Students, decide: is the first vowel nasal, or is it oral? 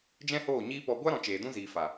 nasal